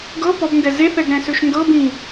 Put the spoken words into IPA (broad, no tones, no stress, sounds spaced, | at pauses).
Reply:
ɡ ɤ p ɔ b n d ɛ z e θ ɛ ɡ ɾ ɛ̃ s ø ʃ n d ɤ b ĩ